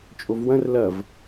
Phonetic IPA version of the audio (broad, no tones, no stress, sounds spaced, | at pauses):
t͡ʃʼ o v w ɐ̃ r l ɐ v